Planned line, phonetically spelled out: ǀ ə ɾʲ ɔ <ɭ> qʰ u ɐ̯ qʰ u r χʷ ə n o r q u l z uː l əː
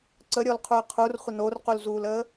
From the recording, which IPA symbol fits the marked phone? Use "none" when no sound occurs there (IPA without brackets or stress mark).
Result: l